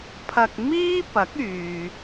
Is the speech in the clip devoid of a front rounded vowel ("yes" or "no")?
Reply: no